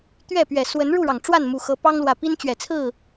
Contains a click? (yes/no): no